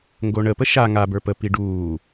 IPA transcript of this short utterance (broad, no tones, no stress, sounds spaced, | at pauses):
ŋ ɡ o ɳ ə p ə ʃ a ŋ a b ə˞ p ə p i ɖ uː